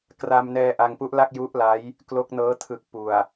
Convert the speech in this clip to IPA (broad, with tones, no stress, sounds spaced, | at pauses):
k r a˧ m n ɛː˧ ʔ a˧ ŋ p u˦˥ ʔ l a˥˩ k̚ j u˦˥ ʔ l a˦˥ j | k l o˦˥ k̚ n ɤː˦˥ tʰ ɯ˨˩ k̚ p u˨˩ a̯